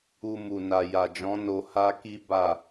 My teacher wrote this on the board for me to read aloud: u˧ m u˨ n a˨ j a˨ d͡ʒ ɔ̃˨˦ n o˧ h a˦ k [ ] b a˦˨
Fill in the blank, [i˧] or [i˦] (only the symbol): i˦